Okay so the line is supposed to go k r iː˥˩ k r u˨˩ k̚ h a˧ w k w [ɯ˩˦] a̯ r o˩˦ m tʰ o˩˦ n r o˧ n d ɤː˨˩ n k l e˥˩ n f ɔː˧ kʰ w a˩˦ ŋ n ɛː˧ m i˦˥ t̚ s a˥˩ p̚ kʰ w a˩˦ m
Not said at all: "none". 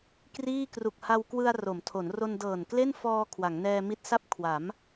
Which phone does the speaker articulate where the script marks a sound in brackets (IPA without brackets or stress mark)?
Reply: ɯ˧